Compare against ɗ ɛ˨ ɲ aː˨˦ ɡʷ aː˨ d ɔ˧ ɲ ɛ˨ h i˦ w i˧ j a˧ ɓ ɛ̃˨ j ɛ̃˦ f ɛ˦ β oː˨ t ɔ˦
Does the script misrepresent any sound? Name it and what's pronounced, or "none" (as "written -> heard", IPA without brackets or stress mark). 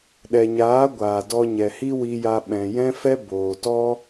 β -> b